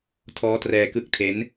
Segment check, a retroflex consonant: absent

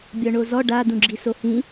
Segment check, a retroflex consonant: present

